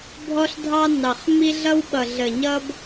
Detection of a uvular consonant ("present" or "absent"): present